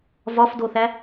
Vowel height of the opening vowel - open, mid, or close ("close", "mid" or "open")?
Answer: open